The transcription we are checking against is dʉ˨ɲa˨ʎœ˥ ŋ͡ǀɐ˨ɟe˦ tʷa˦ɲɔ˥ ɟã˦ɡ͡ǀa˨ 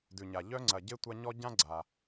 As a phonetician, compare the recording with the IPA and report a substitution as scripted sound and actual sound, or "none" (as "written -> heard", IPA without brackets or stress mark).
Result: none